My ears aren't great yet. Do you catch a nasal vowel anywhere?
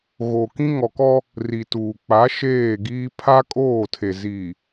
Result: yes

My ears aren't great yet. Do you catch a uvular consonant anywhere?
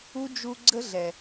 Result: no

